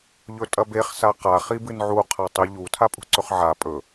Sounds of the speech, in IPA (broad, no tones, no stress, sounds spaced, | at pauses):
ʎ ɵ tʼ ɐ b e χ s a q a χ i b ɨ n ʕ u qʰ a tˤ i ʎ u tʰ a pʼ ṳ ǀ ɵ χ ʕ a pʼ ɵ